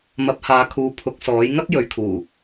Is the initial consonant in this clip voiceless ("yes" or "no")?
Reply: no